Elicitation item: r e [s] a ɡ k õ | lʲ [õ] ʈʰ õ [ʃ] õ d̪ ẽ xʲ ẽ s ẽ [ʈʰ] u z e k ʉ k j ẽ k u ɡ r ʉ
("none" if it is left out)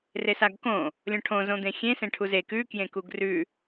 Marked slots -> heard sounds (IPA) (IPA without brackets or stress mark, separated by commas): s, õ, z, ʈʰ